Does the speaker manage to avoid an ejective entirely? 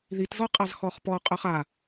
no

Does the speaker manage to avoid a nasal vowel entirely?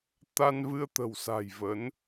yes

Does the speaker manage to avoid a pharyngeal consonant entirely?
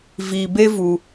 yes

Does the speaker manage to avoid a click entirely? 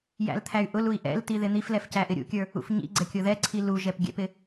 no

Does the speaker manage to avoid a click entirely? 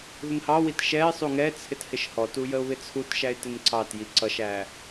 no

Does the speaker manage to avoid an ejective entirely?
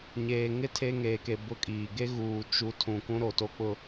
no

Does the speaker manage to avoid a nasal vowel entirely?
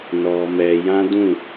no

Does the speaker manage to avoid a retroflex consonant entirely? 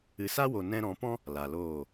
yes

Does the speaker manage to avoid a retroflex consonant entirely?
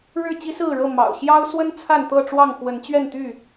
no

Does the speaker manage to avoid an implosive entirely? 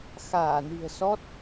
yes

